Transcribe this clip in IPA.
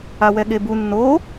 a w ɛ ɠ e b u nː o

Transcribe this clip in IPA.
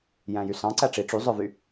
j æ̃ j y s ɑ̃ ǀ æ ʈ͡ʂ i ʈ͡ʂ y zˤ œ v y

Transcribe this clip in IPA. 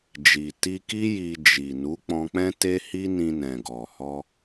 d͡ʒ i˨ t i˧ k i˦ j i˧ d͡ʒ i˨ n u˨˦ k͡p ɔ̃˧ k͡p ɛ̃˦ t e˦ h i˦ n ĩ˧ n ɛ̃˨ ɡ ɔ˨ h ɔ˧

